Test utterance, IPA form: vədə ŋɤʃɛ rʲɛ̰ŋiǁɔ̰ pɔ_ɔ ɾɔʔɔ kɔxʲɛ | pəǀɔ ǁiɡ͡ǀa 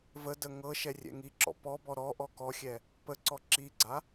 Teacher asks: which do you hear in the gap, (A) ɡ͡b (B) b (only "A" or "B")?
B